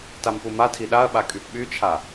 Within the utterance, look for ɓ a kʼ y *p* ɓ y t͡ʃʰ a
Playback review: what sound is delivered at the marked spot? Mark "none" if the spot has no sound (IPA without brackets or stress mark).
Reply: p